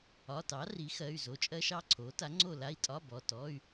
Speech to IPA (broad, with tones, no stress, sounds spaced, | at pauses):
ɒ˩˧˩ t ɑ˩˥ r i˩˥ x ɜ˩˧˩ y̯ z o˩˥ t͡ʃʼ ɜ˧˥˧ ʃ ɑ˥˨ ǀʰ o˩˥ t a˩˥ ŋ͡ǀ o˥˨ l a˧˥˧ i̯ tʼ ɒ˧˥˧ b ɔ˩˧˩ t ɔ˧˥˧ y̯